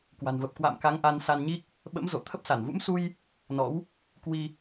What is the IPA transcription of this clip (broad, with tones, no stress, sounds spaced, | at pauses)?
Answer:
k w a̤˨˩ n v ə˨˩ p̚ k w a̰˧˨ m k a˨˦ ŋ ʔ a˧ n s a˧ n ɲ i˦˥ k̚ | ɓ ə̰˧˥ m z o̰˧˨ t̪ʰ ə˦˥ p̚ s a˧˩ n v ṵ˧˥ m s u˧ j | n ɔ̰˧˥ w | k w i˧